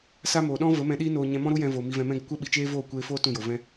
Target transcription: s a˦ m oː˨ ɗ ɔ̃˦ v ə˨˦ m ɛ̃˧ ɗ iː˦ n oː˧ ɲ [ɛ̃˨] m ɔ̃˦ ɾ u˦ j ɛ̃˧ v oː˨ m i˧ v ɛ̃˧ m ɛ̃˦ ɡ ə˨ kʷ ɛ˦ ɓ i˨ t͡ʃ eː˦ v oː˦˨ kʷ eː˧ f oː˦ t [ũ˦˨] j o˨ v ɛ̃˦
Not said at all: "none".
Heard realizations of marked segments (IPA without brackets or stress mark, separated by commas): ɛ̃˧, ũ˦˨